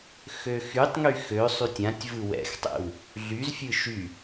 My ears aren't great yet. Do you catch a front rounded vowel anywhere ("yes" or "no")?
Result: yes